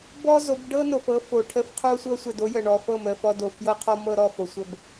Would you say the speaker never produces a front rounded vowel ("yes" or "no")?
yes